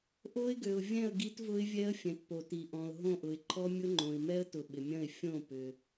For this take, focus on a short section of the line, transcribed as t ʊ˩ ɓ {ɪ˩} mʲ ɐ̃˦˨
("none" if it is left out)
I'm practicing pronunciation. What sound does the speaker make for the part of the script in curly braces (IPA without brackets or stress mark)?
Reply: ɪ˩